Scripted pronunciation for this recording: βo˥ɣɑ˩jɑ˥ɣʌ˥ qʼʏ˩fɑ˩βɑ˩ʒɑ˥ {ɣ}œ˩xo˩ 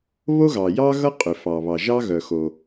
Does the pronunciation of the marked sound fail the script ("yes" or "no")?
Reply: no